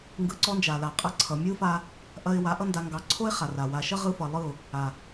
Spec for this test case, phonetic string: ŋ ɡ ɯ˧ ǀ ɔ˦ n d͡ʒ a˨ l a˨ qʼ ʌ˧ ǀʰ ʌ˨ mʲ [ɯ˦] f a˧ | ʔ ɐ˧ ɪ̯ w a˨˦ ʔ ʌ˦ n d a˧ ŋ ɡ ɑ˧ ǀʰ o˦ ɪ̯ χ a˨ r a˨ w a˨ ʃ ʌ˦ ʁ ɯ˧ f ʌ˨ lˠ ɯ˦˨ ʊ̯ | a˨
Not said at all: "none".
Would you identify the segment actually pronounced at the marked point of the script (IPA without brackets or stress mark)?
ɯ˦